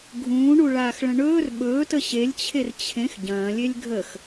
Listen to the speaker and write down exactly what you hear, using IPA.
ɡʱ ũː ɳ u ɭ aː x ɭ ə̃ ɳ ɵː r ɓ ɵː t ə ɕ e lʲ t͡ɕʰ e r t͡ɕʰ ẽ x ɟ ɐ̃ː lʲ e lʲ ɡʱ ə x

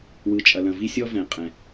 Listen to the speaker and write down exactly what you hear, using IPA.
w ɯ˩ t͡ʃʼ ɐ˩ l ɐ̃˩ v i˥ sʲ ɔ˥ v ɛ̃˩ qʼ ɛ̃˩

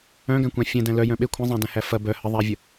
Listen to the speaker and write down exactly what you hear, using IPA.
œ̃ ɡ æ̃ kʷ æ̃ fʲ ɛ̃ d æ̃ l œ j œ̃ ɓ e kʷʰ ɐ̃ zˤ æ̃ d æ̃ h æ f ɐ b œ h ə ðˤ æ vʲ ə

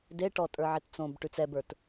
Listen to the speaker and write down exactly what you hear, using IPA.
d e ʈ ɔ tʼ ə˞ ʕ e t t͡s õ b ʈ ʉ t͡s ɛ b ə˞ t

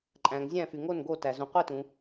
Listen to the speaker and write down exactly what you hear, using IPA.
ǃʼ æ̃˩ ŋ zʲ æ̃˧˩ f y˩ ŋ o˧˩ n ɡ o˧˩ t æ˩ z ũ˩ qʷ i˧˩ t ũ˩

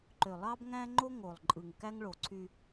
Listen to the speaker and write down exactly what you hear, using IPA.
ǃ ø˨ lˠ ɑ˦ b ŋ æ̃˦ ŋ͡ǃ o˦ ŋ o˨ lˠ ǃʼ ɯ˨ ŋ k æ˦ ŋ ɭ o˨ ǀʰ y˦

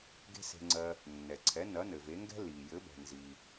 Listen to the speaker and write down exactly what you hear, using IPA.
ɡ e̤˥ s e̤˧ ŋ͡ǀ ɜ˧ | nː ɛ˩ ǀʰ ɛ˩˥ n ɐ˩˥ n ɘ˩ v e˩˥ ŋ ɡ ɛ̤˥ l i˩ j ɘ˩˥ b ɛ̤˩ n z i˩

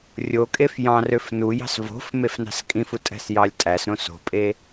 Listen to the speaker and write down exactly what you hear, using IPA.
rʲ o kʼ e f j ɑ̃ r ø f n u j ɑ̤ s v o̤ f m e f n ɑ̤ s kʼ ĩ f u tʼ æ̤ s j ɑ lʲ tʼ æ s ɾ õ s o̤ pʼ e

